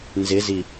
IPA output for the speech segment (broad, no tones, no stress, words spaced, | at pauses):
nzɪzi